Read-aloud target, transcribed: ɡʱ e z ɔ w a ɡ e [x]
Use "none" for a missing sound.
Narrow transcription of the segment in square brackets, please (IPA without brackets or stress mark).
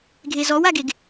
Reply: ɡ